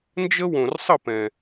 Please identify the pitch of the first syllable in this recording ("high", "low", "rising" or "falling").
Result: high